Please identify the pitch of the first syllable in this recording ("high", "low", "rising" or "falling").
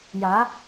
rising